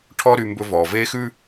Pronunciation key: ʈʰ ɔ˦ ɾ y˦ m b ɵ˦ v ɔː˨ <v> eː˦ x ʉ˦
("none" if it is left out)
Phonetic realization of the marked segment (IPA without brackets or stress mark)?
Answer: v